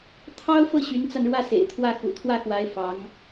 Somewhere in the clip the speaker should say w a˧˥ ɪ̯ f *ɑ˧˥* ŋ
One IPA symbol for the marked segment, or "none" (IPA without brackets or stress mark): ɑ˧˥